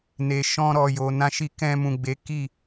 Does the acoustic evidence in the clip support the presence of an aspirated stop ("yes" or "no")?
no